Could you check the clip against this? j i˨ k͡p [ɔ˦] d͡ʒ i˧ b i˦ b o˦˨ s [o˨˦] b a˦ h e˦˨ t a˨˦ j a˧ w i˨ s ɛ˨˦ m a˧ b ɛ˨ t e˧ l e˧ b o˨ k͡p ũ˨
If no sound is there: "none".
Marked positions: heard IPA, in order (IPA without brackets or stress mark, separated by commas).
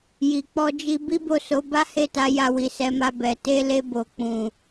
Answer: ɔ˧, o˨˦